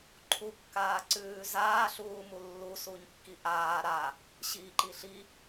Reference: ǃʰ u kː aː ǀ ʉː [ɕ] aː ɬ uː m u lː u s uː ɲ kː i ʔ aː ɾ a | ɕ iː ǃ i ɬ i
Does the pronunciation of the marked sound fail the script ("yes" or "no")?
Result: yes